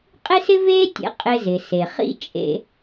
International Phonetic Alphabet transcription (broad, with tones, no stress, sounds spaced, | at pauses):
qʼ e˥ s ɪ˥ v eː˥ tʲ ɛ̰˧ qʼ ɪ˧ z ɪ˩ s e˩ χ ḭ˥ t͡ʃʼ ḛ˧